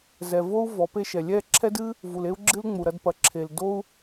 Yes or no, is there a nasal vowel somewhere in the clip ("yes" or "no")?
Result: no